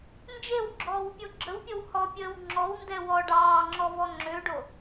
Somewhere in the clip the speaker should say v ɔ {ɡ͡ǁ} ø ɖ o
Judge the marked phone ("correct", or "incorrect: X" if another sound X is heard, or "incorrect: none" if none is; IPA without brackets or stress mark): incorrect: ŋ͡ǁ